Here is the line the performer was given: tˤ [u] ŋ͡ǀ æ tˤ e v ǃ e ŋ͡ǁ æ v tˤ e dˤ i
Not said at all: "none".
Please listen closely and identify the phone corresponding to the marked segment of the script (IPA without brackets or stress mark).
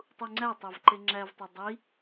u